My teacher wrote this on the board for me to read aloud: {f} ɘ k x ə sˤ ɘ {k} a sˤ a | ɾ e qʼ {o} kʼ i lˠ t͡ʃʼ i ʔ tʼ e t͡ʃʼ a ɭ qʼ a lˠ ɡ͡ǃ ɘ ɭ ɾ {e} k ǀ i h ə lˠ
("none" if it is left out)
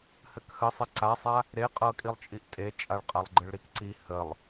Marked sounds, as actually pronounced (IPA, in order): h, ǀ, ɤ, i

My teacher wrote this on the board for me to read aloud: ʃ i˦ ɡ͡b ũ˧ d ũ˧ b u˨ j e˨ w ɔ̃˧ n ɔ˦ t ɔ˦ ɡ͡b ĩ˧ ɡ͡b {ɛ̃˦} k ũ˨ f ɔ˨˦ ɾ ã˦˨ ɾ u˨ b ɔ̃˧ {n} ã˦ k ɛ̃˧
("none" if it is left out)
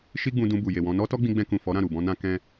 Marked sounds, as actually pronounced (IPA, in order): ɛ̃˧, n

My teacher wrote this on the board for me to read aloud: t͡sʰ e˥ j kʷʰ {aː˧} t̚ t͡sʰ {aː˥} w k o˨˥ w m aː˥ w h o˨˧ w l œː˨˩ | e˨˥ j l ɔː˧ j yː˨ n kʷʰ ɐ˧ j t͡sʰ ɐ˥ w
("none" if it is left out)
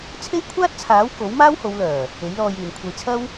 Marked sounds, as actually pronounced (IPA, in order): aː˥, aː˨˥

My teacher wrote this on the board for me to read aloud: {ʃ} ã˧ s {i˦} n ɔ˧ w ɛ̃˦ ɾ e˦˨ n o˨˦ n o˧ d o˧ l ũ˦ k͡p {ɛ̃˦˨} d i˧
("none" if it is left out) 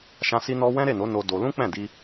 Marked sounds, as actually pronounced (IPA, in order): ʃ, i˧, ɛ̃˦˨

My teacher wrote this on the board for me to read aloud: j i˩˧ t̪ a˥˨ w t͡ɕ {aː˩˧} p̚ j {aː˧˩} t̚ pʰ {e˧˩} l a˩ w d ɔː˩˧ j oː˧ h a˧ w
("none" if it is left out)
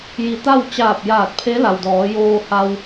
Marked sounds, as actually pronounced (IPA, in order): aː˧˩, aː˧˩, e˧˥

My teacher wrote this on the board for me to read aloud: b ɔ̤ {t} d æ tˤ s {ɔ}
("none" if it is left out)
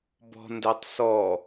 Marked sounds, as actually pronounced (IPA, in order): n, ɔ

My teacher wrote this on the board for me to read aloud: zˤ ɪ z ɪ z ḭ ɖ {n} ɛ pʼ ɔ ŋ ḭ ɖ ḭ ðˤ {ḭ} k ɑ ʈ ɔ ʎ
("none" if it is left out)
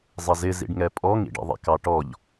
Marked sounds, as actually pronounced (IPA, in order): ŋ, ḭ

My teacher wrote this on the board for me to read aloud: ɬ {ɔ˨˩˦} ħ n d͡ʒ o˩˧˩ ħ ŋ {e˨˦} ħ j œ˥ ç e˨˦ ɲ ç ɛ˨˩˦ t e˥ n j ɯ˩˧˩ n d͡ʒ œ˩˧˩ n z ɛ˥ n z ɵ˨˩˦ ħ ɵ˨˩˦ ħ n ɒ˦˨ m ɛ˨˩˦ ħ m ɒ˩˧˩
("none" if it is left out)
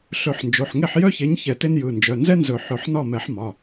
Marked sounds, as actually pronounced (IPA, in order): ɵ˨˩˦, e˦˨

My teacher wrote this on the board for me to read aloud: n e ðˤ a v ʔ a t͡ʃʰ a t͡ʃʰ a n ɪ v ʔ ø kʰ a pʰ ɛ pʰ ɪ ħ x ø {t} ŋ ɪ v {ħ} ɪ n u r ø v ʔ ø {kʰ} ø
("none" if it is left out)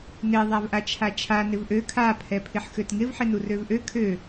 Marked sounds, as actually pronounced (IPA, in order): t, ħ, kʰ

